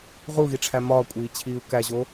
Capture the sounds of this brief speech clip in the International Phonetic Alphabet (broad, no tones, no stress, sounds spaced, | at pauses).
ʁ u ɣ i ʈ͡ʂʰ æ m ɒː kʷʼ iː t͡ɕʰ iː u̯ k æ ʑ o